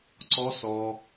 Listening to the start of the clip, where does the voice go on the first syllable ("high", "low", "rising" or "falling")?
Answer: rising